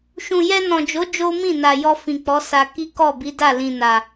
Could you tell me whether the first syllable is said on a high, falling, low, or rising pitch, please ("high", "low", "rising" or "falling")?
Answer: low